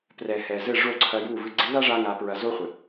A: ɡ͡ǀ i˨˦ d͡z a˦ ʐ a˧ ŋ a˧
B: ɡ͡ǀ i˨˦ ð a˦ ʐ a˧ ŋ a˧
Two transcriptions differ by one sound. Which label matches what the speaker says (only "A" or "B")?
B